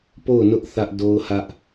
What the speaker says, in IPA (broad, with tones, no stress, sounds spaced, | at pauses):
p o˦˨ ʊ̯ n ʊ˦ ʔ θ ä˦ ʔ d o˦ ʊ̯ h ä˦ ʔ